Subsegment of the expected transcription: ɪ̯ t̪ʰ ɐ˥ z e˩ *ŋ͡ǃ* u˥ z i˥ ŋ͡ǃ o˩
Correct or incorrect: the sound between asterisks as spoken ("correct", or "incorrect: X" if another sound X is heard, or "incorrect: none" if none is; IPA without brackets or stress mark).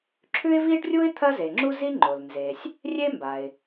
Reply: incorrect: ŋ͡ǁ